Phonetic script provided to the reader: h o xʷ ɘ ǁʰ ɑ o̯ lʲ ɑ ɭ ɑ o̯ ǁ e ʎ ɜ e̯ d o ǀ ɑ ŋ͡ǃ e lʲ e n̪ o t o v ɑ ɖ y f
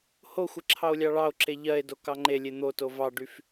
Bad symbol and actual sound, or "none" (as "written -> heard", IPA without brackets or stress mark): ǀ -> k